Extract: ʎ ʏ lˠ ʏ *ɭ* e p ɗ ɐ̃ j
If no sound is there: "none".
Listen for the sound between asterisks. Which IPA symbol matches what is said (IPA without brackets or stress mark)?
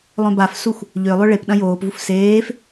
ɭ